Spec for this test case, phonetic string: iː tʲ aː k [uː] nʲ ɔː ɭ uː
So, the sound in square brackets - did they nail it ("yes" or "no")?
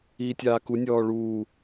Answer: no